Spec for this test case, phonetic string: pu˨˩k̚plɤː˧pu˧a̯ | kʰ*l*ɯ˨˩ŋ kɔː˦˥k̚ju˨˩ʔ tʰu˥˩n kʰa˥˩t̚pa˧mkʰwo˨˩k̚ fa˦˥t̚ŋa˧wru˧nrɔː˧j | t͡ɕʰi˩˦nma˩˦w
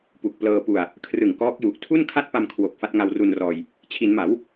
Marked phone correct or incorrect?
incorrect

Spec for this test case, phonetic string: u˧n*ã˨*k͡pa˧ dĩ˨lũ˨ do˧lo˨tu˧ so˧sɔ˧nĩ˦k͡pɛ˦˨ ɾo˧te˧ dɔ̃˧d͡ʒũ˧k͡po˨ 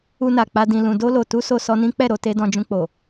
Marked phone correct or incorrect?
incorrect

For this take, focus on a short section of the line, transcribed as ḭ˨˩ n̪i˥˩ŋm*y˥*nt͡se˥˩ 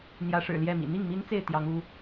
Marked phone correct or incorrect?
incorrect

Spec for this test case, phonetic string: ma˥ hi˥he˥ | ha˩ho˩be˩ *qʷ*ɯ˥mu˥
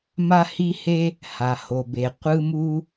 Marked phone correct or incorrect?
correct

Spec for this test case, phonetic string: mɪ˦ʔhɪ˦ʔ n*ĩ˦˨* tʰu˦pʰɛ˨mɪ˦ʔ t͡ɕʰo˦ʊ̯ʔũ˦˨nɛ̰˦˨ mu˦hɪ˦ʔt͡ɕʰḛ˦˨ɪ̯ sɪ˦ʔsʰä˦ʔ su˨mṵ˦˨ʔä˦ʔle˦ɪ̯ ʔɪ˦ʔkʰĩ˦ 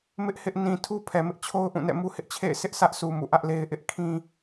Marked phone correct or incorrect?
incorrect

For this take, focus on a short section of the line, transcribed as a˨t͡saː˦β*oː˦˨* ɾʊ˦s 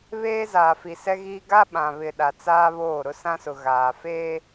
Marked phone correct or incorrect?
correct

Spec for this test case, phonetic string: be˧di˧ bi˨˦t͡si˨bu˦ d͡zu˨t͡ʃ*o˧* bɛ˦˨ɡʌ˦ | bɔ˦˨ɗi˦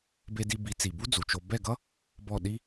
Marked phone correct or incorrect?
correct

